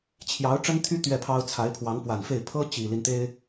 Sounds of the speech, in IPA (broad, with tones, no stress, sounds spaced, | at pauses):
t͡ɕʰ j ɑ˧˥ ʊ̯ ʈ͡ʂ ə˥ n t̪ʰ y˥ t̪ ɥ ɛ˥˩ pʰ ɑ˥ ʊ̯ t͡sʰ a˧˥ ɪ̯ pʰ w ɑ˧˥ ŋ p w a˨˩ n f e˥˩ ɪ̯ pʰ ɤ˥ t͡ɕ i˨˩ l i˦ n t̪ e˥ ɪ̯